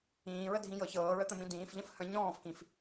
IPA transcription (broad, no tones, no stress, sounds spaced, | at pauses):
ĩː ɹ ə dʱ ĩ j ɤ ç ɤː ɹ ə t̪ ə̃ m ĩ d ĩː f ʎ ə̃ f h ə̃ ɲ ɔ̃ː f k ĩ f